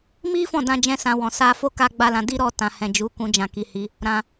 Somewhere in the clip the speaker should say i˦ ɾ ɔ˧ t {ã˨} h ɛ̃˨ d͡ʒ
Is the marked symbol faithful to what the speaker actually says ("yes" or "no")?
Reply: yes